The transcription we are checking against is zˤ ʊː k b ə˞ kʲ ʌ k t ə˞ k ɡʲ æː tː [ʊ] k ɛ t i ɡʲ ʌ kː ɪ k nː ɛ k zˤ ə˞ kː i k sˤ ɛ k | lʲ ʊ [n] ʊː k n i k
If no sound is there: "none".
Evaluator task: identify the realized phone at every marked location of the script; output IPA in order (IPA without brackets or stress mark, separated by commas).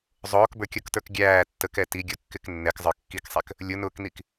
ə, n